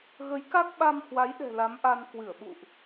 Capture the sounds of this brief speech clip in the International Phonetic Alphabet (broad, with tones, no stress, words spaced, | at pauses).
ɣə˨˦jka˦˥k̚ɓa˧m hwa˨˦jɗɛ̤˨˩ la˨˦mʔa˧n kwɨ˧˩ə̯ɓṵ˧˨ʔ